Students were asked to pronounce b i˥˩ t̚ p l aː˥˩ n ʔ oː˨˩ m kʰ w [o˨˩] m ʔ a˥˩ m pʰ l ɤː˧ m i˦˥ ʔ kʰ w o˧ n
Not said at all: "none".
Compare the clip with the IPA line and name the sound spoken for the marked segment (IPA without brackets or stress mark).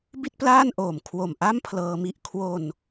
o˨˩